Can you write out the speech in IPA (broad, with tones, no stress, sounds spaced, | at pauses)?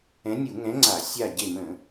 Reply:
ɛ̃˨˥ nʲ u˧˩˧ ŋ ɛ̃˨˥ ŋ͡ǀ a˧˩˧ sʲ a˧˩ ɟ e˧˩ m ə̃˧˩˧